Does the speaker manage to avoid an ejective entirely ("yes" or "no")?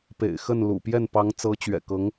yes